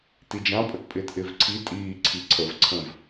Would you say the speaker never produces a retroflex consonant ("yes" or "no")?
yes